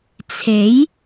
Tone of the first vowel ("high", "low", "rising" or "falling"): rising